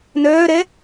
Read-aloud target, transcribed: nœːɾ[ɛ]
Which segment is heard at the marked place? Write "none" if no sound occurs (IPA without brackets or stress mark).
ɛ